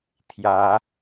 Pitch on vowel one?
rising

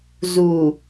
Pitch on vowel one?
low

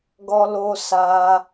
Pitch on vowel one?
high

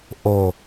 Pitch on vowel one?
low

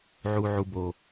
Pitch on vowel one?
low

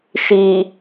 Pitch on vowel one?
low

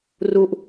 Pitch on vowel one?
falling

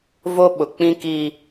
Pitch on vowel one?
high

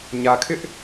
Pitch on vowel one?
low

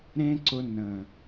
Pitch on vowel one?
high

